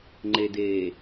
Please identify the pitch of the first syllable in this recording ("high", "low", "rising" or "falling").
low